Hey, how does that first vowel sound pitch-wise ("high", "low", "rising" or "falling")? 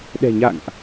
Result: low